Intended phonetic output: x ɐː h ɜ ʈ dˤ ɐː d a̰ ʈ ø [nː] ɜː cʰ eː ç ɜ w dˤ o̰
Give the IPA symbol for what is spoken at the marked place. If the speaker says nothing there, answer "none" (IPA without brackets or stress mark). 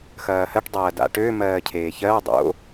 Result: m